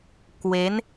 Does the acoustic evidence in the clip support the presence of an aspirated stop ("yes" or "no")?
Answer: no